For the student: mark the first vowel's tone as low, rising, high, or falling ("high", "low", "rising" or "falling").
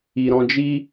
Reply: low